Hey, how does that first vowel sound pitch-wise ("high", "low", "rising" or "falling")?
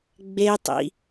high